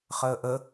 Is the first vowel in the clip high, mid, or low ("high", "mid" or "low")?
mid